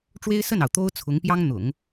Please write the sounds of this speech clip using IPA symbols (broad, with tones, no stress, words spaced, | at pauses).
ʈ͡ʂwe˥ɪ̯sə˥˩nɑ˩ʊ̯ t̪o˥ʊ̯ t͡sʰʊ˧˥ŋpjɑ˥ŋ n̪ʊ̰˨˩˦ŋ